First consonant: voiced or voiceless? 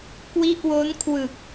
voiceless